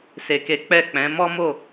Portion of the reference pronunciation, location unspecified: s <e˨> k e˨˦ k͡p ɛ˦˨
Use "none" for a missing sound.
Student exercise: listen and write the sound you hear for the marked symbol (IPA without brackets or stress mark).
e˨